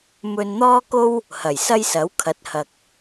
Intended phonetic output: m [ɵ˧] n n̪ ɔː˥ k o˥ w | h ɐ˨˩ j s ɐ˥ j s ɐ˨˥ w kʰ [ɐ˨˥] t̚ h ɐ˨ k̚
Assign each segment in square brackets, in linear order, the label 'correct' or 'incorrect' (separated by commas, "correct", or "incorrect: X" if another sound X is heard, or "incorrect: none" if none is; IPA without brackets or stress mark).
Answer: correct, correct